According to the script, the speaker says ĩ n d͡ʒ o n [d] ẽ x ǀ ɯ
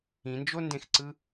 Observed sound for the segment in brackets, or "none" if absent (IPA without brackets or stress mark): d